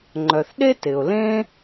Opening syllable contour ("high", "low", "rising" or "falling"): low